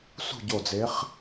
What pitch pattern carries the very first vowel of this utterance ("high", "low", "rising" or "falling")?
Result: falling